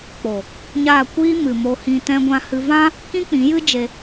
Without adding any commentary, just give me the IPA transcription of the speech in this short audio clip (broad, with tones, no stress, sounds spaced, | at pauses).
k͡p o˨ | ɲ a˦˨ kʷ iː˦ m ɨ˨ m o˧ h ĩ˧ t ɛ̃˧ ɡʷ ã˧ h ɨ˧ v ã˦ | k ĩ˦ k͡p ĩ˨˦ j ɨ˦ d͡ʒ e˧